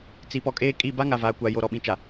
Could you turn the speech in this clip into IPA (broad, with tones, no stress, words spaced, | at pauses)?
t͡si˨˦pɔ˨kʼeː˦ kʼi˦˨ ba˦ŋa˨vaː˨kʷa˨ jo˨ ɾɔ˨ɓĩ˨t͡ʃa˨